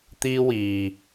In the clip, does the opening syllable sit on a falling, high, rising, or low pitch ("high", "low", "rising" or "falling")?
high